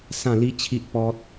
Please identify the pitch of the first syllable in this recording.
falling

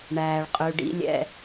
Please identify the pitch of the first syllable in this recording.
low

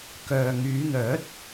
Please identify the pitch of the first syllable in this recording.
low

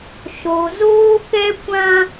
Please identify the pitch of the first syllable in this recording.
low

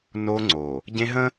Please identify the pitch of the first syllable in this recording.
high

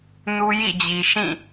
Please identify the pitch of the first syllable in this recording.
high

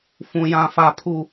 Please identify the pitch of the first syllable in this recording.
low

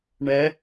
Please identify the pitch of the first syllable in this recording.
rising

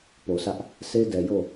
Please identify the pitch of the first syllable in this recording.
low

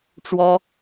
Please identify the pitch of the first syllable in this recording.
high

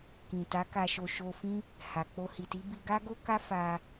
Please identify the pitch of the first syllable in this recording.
low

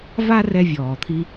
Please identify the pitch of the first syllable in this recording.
high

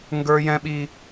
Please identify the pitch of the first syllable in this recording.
high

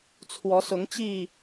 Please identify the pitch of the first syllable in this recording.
rising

